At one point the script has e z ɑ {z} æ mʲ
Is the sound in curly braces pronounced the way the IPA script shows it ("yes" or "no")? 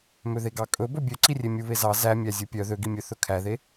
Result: yes